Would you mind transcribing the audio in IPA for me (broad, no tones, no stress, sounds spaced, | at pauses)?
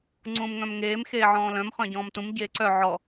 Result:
ŋ͡ǀ ũː m ŋ œ̃ m ŋ eː m x eː ʕ ɔ̃ː l œ̃ m χ œ̃ ɟ ɔ̃ː m t ũ m ɟ eː ǀ œ ʕ ɔ